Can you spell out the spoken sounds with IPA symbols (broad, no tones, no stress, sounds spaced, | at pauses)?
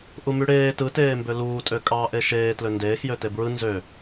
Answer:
ʔ u m y ɽ eː t ɯ t eː m b ø l uː tʼ ø kʼ ɑː ʔ e ʃ eː t l ø n d eː x j ø t e b ɹ ɯ n z ø